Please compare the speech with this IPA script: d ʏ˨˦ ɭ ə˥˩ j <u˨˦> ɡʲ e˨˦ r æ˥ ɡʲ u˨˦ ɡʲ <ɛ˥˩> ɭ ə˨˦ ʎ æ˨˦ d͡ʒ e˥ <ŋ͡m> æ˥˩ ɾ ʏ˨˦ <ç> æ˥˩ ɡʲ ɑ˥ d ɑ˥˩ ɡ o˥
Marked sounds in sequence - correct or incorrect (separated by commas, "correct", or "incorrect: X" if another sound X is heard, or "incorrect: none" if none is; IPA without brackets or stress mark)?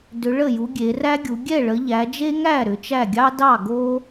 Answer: correct, correct, incorrect: ŋ, incorrect: t͡ʃ